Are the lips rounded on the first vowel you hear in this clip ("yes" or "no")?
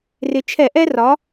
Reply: no